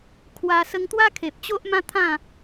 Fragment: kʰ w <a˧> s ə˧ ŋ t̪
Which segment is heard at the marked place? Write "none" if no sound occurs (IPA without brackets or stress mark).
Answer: a˧